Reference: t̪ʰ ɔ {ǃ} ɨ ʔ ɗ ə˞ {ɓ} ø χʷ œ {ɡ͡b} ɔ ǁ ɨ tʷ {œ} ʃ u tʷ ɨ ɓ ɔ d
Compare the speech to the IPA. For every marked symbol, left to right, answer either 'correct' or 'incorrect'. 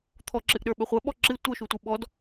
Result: incorrect: ǁ, correct, incorrect: ɓ, correct

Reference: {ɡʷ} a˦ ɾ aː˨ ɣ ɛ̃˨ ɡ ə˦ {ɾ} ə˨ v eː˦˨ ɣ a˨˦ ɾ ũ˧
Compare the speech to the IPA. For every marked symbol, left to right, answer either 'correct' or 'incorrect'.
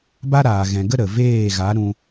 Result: incorrect: b, correct

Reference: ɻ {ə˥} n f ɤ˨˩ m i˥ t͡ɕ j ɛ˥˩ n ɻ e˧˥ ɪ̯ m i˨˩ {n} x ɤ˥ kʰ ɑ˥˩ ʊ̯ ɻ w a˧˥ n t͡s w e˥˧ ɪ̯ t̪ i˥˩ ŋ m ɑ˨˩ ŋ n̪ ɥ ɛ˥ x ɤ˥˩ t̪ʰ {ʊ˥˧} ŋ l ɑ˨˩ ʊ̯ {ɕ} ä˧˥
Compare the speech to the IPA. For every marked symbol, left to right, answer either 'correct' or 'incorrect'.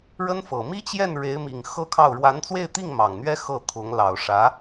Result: correct, incorrect: ŋ, incorrect: ʊ˧˥, incorrect: ʂ

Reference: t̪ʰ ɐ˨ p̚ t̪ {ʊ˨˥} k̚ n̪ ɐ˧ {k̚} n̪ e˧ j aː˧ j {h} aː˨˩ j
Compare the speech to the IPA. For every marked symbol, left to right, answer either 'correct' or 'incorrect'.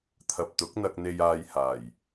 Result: correct, correct, correct

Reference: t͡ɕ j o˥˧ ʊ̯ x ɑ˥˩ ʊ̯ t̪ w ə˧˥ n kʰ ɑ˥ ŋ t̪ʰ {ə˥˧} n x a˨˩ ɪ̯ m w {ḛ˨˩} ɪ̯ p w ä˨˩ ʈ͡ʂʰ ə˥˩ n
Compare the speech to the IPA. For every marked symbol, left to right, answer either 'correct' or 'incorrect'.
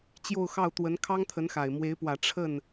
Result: incorrect: ə˧˥, incorrect: e˧˥

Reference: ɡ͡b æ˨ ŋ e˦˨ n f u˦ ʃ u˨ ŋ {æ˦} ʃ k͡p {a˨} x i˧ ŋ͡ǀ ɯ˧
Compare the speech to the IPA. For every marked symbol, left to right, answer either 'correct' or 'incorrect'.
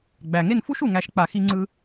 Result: incorrect: æ˧, correct

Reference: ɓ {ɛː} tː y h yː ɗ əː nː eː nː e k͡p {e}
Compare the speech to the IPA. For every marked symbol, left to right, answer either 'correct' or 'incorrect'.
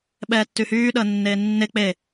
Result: correct, correct

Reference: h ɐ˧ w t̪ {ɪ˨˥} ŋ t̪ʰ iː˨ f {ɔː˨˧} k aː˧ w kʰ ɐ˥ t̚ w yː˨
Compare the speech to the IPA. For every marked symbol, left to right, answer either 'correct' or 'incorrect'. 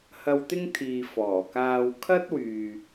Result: incorrect: ɪ˥, incorrect: ɔː˨˩

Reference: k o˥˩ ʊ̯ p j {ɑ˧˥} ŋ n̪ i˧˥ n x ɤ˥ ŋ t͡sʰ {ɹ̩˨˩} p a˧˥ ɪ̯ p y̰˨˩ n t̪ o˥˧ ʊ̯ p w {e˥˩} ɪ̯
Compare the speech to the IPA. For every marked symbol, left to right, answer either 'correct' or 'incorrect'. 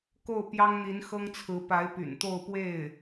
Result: incorrect: ɑ˥, incorrect: ɹ̩˧˥, correct

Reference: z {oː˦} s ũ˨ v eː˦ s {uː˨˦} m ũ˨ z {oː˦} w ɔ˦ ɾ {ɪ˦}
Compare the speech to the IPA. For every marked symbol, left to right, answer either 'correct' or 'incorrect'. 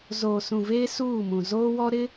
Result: incorrect: oː˨, incorrect: uː˦˨, correct, correct

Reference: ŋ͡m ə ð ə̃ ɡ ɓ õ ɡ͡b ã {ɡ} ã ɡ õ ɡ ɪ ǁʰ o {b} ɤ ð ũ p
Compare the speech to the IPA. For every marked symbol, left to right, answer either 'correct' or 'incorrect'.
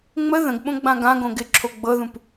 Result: correct, incorrect: ɡ͡b

